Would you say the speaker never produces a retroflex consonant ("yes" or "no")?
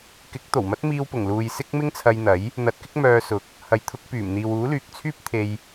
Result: yes